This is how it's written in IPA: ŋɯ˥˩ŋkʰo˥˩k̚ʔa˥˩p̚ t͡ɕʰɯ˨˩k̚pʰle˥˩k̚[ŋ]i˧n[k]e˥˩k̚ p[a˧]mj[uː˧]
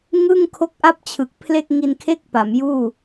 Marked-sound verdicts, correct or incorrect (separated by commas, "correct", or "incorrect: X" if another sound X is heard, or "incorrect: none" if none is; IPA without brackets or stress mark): correct, incorrect: kʰ, incorrect: a˩˦, incorrect: uː˥˩